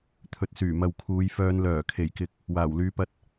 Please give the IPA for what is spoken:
t̪ʰɵ˨t̚syː˨˩mɐ˨w kʰuː˨˧jfœː˧n lœː˨˩kʰe˨˩jkɪ˨k̚ | waː˨˩wlyː˨˧pɐ˧t̚

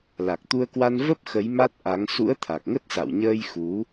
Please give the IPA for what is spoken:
la˨˩k̚t̪u˧ə̯kwa˧n və˦˥p̚ xə˨˦j ma˦˥t̚ʔa˨˦ŋ sṵ˧˥ə̯t̪ʰa˨˩k̚ŋə˦˥t̚sa̰˧˨w ɲəː˧jxu˨˦

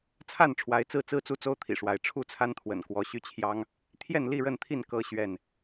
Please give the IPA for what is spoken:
t͡sʰa˥˨nʈ͡ʂʰwa˨˦ɪ̯ t͡sɹ̩˥˨t͡sɹ̩˦ t͡su˦t͡so˦ʊ̯t̪ʰḭ˨˩ʂwa˨˦ɪ̯ ʈ͡ʂʰu˥˨t͡sʰa˦nt̪ʰwə̰˨˩n kwɔ˨˦ɕy˦t͡ɕʰjɑ˦ŋ | t̪ʰjɛ˥˨nli˥˨ɻə˥˨nt̪ʰi˥˨n kɤ˦ ɕɥɛ˥˨n

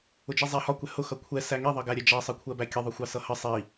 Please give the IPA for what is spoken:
ʊd͡ʒizˤæhɒ kʷɛhʊ xʌkʷʰɛ sæŋi ðˤʌɡæɾʲɛd͡ʒɑ sˤəkʷʰɜbækʲə ðˤʊxʷɑsʌhə sˤi

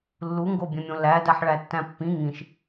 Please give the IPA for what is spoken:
lːuŋɡobʲẽmʲõ læ dæħɭætːæ̃pːĩ ŋĩʃ

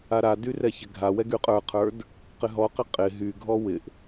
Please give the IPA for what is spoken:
aɾady rɛçɪɡʱawɛ ɡyqʼə˞qʰə˞d | qɪɦɔqɪ qʼɪ ɦyɡʱɔ wɪʔ

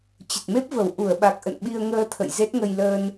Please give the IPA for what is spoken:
t͡ɕə˨˩t̚me˦˥p̚və˨˩w ʔu˧˩ə̯ɓa˨˩k̚ʔə̰˧˨n ɓi˧ə̯ŋəː˧ t̪ʰə̰˧˨jze˦˥t̚ŋə˧j ləː˧n

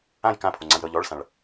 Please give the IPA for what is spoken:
ãj kãpʰoŋ͡ǀãj ɾɤʎ ɔɭsãɭ

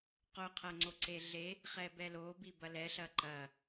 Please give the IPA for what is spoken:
qoqʰɐŋ͡ǀoǀe ɮe | χɛbɛlo bibɐlɛɬɐ ǃɐ

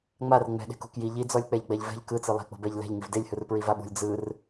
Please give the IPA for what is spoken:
ŋ͡mar ŋ͡mɛ̤ɗe̤ kṳkji ʎi d͡zɔlʲk͡pɛʎɡ͡bɛʎvɛ̤ʎ kɯt͡sɯ lˠe̤k͡po̤bɛʎ lɛ̤ʎ ŋivdelʲhɯr pɹivaɓṳlʲ d͡zɯr

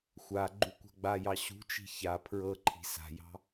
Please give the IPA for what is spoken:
xʷa ɡ͡ǃukʷa̤ɡ͡bajɑ ɕṳt͡ʃi̤ ça pʰɹɤǃʰi̤ sa̤jɑ̤

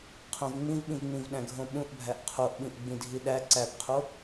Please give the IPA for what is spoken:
qʰõvŋ͡mĩvɓĩvŋ͡mĩv ɗæ̃ɡʱõɓũʔbʱæʔ qʰoʔɓĩʔ ɡ͡bĩdʱiɗæ ǀæpqʰo

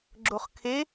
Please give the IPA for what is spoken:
ɡ͡ǁoχkʰe

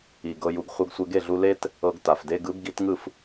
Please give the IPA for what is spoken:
i˩ ɡɤ˧ju˩˥ɡ χʷɤ˧ɡsʷe˧ɡe˥˩ɮu˧ le˥t | ɤ˧ɡta˩f de˧ɡɯ˩˥b ɡi˩˥tŋɯ˥˩f

